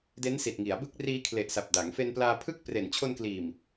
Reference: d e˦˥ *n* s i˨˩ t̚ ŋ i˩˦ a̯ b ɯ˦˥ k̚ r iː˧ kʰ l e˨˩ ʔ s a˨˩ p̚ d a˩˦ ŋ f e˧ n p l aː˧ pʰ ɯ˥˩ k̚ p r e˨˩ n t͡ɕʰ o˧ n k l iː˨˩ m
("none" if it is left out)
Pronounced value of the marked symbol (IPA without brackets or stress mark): n